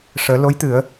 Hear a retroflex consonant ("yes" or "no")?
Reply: yes